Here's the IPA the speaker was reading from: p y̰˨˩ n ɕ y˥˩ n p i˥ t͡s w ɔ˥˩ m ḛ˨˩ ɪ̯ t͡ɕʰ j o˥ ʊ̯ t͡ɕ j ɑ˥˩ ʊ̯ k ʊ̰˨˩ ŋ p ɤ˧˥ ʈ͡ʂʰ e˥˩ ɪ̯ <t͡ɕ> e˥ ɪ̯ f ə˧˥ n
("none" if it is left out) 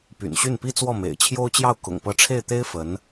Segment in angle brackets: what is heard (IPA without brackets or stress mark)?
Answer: t̪